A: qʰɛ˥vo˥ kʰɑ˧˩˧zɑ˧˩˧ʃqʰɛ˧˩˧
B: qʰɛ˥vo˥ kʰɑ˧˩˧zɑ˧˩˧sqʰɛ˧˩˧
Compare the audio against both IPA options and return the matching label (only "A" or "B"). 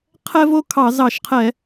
A